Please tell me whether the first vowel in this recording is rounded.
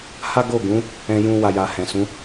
no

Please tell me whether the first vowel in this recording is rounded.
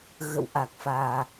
no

